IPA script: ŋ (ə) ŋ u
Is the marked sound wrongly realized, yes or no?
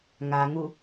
yes